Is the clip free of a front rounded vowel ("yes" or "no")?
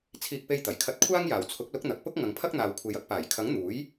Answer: yes